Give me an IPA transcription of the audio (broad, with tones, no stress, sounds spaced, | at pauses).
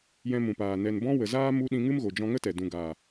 j ɛ̃˧ m ũ˨ p aː˨ n ɛ˨ n b ɔ̃˧ w ə˨ z aː˦ m u˧ ɗ ĩ˧ ŋ ɨ˦ m ɣ o˨ d͡ʒ ɔ̃˧ ŋ ə˦ t ɛ˨ d ũ˨ ɡ aː˨